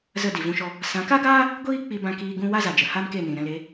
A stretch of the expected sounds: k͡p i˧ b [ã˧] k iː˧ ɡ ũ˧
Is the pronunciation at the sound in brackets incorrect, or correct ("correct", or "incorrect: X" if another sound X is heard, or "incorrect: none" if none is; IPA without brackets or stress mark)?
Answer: correct